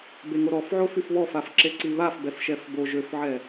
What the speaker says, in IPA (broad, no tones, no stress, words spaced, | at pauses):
beŋoɾɔfʕo fyfβɔfaf ǁeǀiβaf bɛfʃɛfbo ʒøfʕɛ